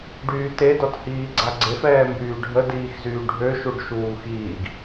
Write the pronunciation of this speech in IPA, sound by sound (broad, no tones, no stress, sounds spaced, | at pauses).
ɖ yː t e d ɔ t h iː ɡ͡ǀ a ɡ͡ǀ e f ɛː m b yː ɖʱ ə d iː x z yː ɖʱ ø ʃ u ɖ ʃ uː x iː ɡ